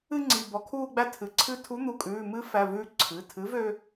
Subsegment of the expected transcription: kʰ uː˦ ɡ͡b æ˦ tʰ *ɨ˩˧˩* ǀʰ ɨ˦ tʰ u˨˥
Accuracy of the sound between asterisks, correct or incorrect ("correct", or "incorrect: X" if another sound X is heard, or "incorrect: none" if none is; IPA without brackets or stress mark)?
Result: correct